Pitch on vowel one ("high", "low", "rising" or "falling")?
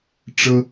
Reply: high